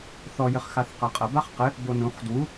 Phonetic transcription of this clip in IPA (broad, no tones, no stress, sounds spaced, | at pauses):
θ ɔ j ɘ χ x a θ q a qʼ ɐ b a χ q ɘ | b o n ũ χ d w u